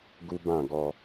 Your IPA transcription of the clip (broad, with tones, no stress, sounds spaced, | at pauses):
ɡ u˦ b ã˦˨ ɡ ɔ˧